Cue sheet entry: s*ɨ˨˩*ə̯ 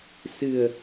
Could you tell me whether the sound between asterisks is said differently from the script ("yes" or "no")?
no